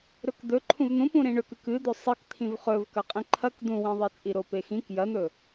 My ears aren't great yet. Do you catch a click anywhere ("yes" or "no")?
yes